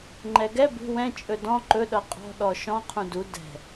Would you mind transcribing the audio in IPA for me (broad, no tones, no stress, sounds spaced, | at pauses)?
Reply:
ŋ͡ǃ ɛ ɡ ɛ b ṳ w ɛ̃ t͡ʃʼ ɵ d ɔ̃ ǃ ɵ ɗ ʌ qʼ ɔ̤ ɗ ɔ ʃ ɔ̃ qʰ ũ d u d ɛ̤